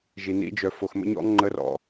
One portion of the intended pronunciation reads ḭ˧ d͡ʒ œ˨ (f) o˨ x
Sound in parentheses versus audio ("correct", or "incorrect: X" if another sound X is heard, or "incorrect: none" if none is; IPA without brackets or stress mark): correct